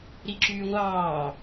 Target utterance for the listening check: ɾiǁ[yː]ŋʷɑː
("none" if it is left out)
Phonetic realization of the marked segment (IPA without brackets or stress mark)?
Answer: yː